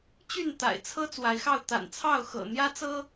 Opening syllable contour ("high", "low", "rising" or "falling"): falling